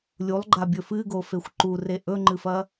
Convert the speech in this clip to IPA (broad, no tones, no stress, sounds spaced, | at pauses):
lʲ u lˠ ɡ͡ǃ a bʲ ɵ f ɨ ɡ o f e xʷ ǃ u r e ʔ ɵ ŋ͡ǃ ɨ f ɐ